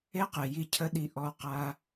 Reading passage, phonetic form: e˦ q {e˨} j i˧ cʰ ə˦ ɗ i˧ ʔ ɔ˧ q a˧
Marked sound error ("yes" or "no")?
no